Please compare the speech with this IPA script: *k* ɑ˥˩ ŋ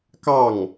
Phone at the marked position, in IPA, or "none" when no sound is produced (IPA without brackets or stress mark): k